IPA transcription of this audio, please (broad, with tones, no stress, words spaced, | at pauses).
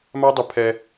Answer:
ma˦ dˤɘ˦ pʰɛ˦